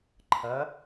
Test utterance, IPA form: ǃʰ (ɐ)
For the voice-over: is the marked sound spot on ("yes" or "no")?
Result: yes